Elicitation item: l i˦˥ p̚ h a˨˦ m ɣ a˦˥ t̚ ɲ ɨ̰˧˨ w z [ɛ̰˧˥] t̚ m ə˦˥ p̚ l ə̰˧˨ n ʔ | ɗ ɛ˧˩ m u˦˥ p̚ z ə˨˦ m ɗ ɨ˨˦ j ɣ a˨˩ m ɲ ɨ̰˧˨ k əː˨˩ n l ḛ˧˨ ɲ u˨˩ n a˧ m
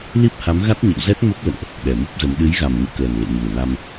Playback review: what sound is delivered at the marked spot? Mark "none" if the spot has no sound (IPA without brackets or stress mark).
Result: ɛ˦˥